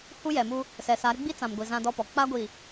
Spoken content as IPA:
hu˦jɛ˨mu˦ | sɛ˨sa˨˦ɾɪ˦ ɡ͡bi˦t͡sã˨mɡʷi˨ zã˦dɔ˦pɔ˨ k͡pa˦ɡʷi˨

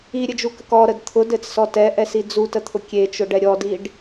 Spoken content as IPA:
iɾʲɘd͡ʒukək ɔɾəd t̪ʰʊdɘt͡ssɔ tɛʔɛsi d͡zutət̪ʰʊ kʲet͡ʃʊɖɛ ɾʲɔdiɖ

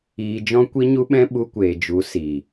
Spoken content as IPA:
iː˧ d͡ʒɔ̃˦ kʷi˦ɲu˦ɓɛ̃˦ ɓu˧kʷeː˨ d͡ʒu˨˦ si˨

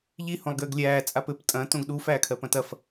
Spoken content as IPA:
ʎi hõlˠɡɘːɡlʲæː t͡sʼapɘp tʼɐ̃ tõɡɗuf æːkʰɜpɐ̃tɐf

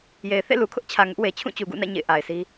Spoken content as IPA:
je˨ɪ̯ θḛ˦˨lu˨kʰʊ˦ʔt͡ɕʰä˨ ŋʊ˦ʔwe˨ t͡ɕʰũ˦˨t͡ɕu˨ɡṵ˦˨nä̰˦˨ ɲḛ˦˨ɪ̯ʔa˨ɪ̯si˦

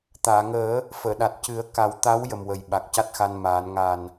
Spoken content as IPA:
t̪aː˨˩˨ŋəː˨˩˦ | fəː˨˩˨ɗa˨˩t̚ cɨ˨˩˦ə̯ka˨˩˦w t̪a˧˥w jə˨˩mwə˨˩j ɓa˨˩k̚ca˦˥t̚xa˧n maː˨˩˦n ŋaː˨˩n

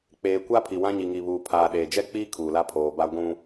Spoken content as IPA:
k͡peː˨kʷa˦ pʰi˨wã˦ɲi˨ŋi˨ βuː˨pʰaː˨ɗeː˨ d͡ʒɛ˦k͡piː˦ kʰuː˨la˦ pʰoː˨ba˦ ɡʷũ˦

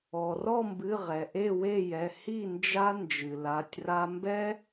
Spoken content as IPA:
ɔ˩rɔ˥˨mbɨ˩˧˩ ʁɛ˩ʔe˥˨we˥˨jɛ˩˧˩ hi˥˨nd͡ʒa˦ nd͡ʒɨ˩la˩˧˩tʲra˦ mbɛ˦

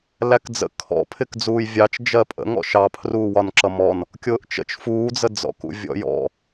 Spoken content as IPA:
lækd͡zə̰ kʰɔ̰pʰɪk d͡zuːjvʲɑt͡ʃ d͡ʒɜpʼə̰ ŋɔ̰ʃɑ pʰruːwɒnǁʌmɔn | kʲʊːʔt͡ʃə̰t͡ʃ fuːd͡zəd͡zɔ̰k ṵvʲɔ̰jɔ̰

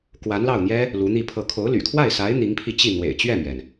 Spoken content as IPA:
kwa˧˥nlɑ˥˩ʊ̯n̪jɛ˥ | lu˧˥n̪i˥˧pʰɤ˥˩ kʰo˧˥ʊ̯ly̰˨˩kʰwa˥˩ɪ̯ sa˧˥ɪ̯ n̪i˧˥ŋpʰi˧t͡ɕi˥˩ n̪wḛ˨˩ɪ̯t͡ɕɥɛ˥˩mɥɛ˩n

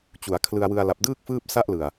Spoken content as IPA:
t͡ɕu˩˦a̯kʰlɯ˧a̯wɯ˧a̯ la˨˩p̚dɯː˥˩k̚ fɯː˥˩p̚sa˥˩ʔlɯ˨˩a̯

